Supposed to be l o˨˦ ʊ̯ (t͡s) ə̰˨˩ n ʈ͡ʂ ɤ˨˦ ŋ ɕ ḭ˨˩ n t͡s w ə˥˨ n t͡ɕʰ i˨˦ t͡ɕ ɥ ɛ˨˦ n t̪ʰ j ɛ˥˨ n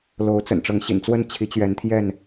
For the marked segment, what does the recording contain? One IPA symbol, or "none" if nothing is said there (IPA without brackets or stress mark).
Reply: t͡s